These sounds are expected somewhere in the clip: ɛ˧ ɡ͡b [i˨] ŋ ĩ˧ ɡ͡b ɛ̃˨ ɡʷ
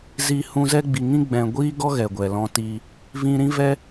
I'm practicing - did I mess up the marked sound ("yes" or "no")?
no